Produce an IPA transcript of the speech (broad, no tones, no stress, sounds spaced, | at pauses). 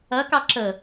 ɐ k ɑ ǁ ə